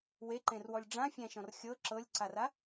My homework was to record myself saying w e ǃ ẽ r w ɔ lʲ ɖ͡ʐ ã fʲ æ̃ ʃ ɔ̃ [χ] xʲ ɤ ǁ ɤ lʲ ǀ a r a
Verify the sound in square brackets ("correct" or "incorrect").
incorrect